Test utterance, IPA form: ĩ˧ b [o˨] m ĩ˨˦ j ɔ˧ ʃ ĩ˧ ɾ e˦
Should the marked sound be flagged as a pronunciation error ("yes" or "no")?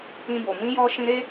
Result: no